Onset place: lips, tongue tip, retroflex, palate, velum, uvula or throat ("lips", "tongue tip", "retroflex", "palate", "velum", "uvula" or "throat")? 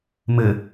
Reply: lips